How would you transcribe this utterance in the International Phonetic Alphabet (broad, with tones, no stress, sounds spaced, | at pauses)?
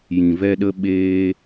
j ĩ˨ v ɛ˧ ɗ ə˧ ɓ eː˧